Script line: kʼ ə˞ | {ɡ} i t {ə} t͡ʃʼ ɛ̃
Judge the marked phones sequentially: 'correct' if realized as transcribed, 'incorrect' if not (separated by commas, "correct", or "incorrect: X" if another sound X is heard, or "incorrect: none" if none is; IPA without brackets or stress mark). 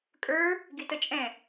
correct, correct